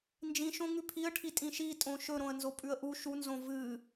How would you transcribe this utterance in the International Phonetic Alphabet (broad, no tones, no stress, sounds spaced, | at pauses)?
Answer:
n d͡ʒ ĩ ʃ õ ŋ ʉ pʰ i ə̯ ʈʰ i tʼ ĩ ʃ i tʼ õ ʃ ɵ ɾ õ ə̯ n z o pʼ ʉ ə̯ ʔ u ʃ u n z õ v ɨ